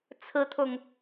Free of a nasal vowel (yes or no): yes